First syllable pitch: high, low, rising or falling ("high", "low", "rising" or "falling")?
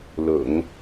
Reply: low